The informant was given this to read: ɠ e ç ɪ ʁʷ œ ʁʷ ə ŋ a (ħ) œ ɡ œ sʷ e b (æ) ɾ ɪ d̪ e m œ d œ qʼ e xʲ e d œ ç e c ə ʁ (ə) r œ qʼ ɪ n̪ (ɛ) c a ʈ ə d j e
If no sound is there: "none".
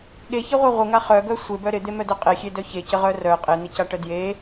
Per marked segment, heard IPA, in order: χ, œ, œ, ɪ

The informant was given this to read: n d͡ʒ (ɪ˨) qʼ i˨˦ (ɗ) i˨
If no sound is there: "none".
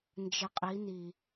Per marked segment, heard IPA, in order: ɪ˨, n

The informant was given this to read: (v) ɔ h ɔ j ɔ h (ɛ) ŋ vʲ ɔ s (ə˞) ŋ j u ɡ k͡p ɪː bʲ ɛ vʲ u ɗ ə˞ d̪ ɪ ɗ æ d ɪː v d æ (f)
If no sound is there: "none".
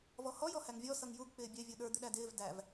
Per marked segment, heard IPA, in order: v, æ, ʌ, v

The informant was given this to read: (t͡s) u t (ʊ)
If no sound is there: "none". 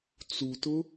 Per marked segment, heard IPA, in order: t͡s, ʊ

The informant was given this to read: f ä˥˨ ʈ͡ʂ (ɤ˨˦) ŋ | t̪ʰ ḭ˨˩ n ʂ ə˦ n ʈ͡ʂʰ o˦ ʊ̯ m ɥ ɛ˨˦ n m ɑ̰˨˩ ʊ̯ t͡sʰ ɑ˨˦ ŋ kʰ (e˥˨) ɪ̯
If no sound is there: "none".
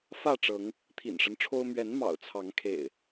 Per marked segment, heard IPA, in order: ɤ˨˦, ḛ˨˩

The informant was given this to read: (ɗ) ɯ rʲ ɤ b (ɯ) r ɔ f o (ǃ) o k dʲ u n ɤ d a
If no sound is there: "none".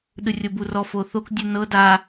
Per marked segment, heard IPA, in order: ɗ, u, θ

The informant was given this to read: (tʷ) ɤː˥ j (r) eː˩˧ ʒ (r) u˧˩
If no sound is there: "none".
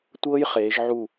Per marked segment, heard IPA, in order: tʷ, χ, ʕ

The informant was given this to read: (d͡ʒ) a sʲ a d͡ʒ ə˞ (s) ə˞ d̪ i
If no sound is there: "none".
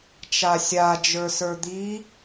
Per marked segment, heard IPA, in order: t͡ʃ, s

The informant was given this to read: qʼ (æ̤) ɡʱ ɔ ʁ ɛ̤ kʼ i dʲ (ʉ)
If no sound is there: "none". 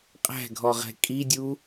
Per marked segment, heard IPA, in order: æ̤, u

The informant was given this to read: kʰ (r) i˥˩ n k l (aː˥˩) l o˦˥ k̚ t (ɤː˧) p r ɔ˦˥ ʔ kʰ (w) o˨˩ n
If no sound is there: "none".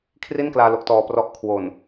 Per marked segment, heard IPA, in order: r, aː˧, ɔː˧, w

